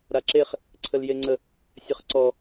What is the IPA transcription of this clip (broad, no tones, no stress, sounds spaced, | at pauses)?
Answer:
ɾ a ǁ e χ | ǀʰ ə l j e ŋ͡ǀ ə | sʲ ə χ ǀ ɔ